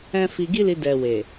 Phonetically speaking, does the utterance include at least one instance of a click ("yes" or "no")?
no